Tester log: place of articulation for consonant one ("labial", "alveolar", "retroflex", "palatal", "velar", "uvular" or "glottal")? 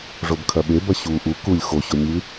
retroflex